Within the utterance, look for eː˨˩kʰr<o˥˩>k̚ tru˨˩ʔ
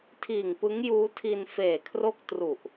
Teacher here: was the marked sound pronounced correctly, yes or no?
yes